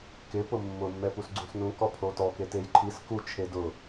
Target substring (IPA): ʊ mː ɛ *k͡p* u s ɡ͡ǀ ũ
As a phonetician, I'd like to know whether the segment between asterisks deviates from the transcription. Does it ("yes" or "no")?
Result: yes